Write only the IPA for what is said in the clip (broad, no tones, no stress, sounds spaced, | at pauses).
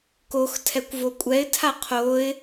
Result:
k o x tʰ ɛ kʷ v o kʷʼ ɛ ɪ̯ tʰ a qʰ o ɪ̯